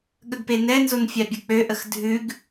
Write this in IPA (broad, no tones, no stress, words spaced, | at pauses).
ɠəɡpenɛnzon fʲabʲək͡pøʔəx dʱʉɡ